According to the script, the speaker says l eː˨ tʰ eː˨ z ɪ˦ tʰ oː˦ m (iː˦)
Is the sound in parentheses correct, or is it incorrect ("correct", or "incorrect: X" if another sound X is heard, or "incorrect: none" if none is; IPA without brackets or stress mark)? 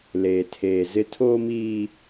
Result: correct